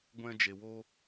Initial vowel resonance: nasal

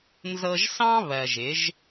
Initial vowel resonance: oral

